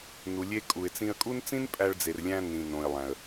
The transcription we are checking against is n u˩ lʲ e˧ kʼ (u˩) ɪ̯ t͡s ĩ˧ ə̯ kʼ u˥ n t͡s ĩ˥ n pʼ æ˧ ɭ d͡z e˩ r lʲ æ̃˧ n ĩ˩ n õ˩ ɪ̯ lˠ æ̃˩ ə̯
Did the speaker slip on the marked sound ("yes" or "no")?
no